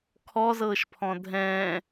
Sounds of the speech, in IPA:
kʰɔzɤːʃpʰɔ̃ dʱɛ̃ː

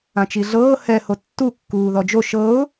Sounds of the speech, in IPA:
ãt͡ʃiɮɤː hɛ hotːu kːuːðɔd͡ʒo ʃɤʊ̯

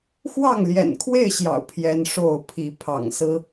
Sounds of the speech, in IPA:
xwɑ˥˨ŋljɛ̰˨˩nkʰwe˥˨ɪ̯ɕjɑ̰˨˩ʊ̯ pʰjɛ˦nʂo˥˨ʊ̯ pʰi˨˦ pʰɑ̰˨˩ŋsɹ̩˦

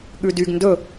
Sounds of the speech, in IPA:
ɠʉdyɡ ndɵ

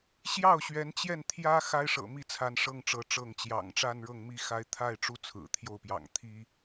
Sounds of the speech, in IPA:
ɕjɑ˥˩ʊ̯ ɕɥɛ˧˥nt͡ɕjɛ˥˩n t̪ʰjä˥ xa˥ɪ̯ʂɤ̰˨˩mi˥˩t͡sʰa˧˥n ʂɤ˥˩ŋʈ͡ʂɤ˧˥ ʈ͡ʂɤ˥˩ŋ t͡ɕjɑ̰˨˩ŋʈ͡ʂa˥˧n ɻɤ˥˩ŋmi˥ xa˧˥ɪ̯t̪ʰa˥˩ɪ̯ ʈ͡ʂu˥ t͡sʰɹ̩˨˩ t̪ʰjo˥˩ʊ̯pjɑ̰˨˩ŋ t̪ʰi˥

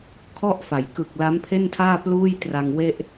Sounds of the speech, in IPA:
kʰɔ˥˩ʔfa˩˦j kɯ˨˩k̚ la˦˥mpʰe˥˩ntʰaː˥˩ pluː˥˩jtra˧ŋ we˥˩ʔ

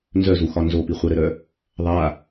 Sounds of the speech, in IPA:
nzœzuxɒ nzopi χʷɘɾɘɾœ | ðˤa

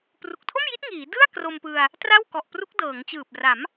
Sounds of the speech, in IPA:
pru˨˩k̚tʰo˥˩mji˦˥t̚ ŋiː˩˦dɯ˥˩a̯ kro˧mpɯ˧a̯ | tra˥˩wkɔ˨˩ʔpru˦˥k̚ dɤː˩˦ŋt͡ɕɯː˨˩p̚ra˩˦m

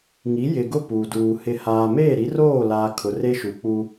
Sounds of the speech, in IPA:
ŋi˨˦jɪ˨ɡʊ˦˨ puː˨duː˨ hɪ˨haː˨ meː˦˨ɾi˨˦roː˦˨laː˨ kʰʊ˨re˦ʃu˨k͡pu˦

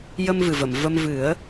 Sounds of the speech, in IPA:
jə˧mvɨ˨˩və˨˩˨m və˧m vɨ˨˩˦ə̯

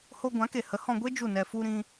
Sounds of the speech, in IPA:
ho˧ɡʷã˨˦ke˨hə˨˦ hɔ̃˧ɡʷe˦ d͡ʒu˦˨nɛ˧ fu˧ɾĩ˧

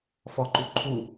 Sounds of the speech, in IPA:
fɔǃu ǃʰu

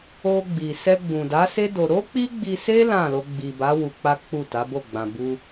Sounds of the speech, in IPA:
o˧ɡ͡bi˨ sɛ˧ɡ͡bũ˨da˨˦se˦ do˧ ɾo˦k͡pi˦ɡ͡bi˧se˦ lã˦˨lo˧ ɡ͡bi˨ba˨˦ wu˧k͡pa˦k͡pu˦˨ta˨˦ bo˦˨ɡ͡bã˨bu˧

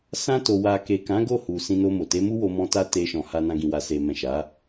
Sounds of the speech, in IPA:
sã˧to˨ wa˨ke˨kã˨˦ ɡo˦˨hu˨ sĩ˧no˧mo˨ te˨˦mu˦wo˧mɔ̃˧ ta˦ te˧ʃɔ̃˨ ha˧nã˧ ɡĩ˨wa˨se˨mɛ̃˨ ʃa˨˦

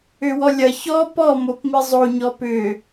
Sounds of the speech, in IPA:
ʏwɔlʲɐ çɔ pɔ mopmizˤo ɲɔpʏ

